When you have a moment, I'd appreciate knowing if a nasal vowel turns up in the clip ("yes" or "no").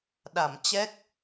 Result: no